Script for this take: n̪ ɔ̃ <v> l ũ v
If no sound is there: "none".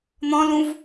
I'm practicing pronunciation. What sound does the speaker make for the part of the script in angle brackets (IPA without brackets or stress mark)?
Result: none